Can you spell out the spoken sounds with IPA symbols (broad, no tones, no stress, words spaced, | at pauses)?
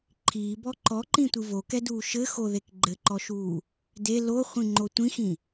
ǃʰiːbɔ ǃɔǃĩtʷɨ vokɛduː ʃɘxoðek ɡ͡ǃɘǃɔʃuː | de loχʷĩŋ͡ǃo tʷĩxĩ